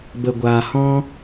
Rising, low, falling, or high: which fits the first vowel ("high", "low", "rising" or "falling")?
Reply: low